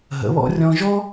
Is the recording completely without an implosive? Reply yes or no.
yes